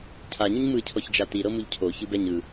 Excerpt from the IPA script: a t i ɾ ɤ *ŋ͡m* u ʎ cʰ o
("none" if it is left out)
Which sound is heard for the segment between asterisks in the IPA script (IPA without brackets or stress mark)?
m